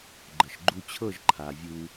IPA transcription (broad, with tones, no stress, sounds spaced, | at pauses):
ɡ͡ǃ ə˨ ʃ ɡ͡ǃ u˧ t͡ɕʰ ɤ˦˨ ʒ ǃʰ a˨ vʲ u˦